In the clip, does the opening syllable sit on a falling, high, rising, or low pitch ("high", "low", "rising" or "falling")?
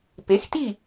rising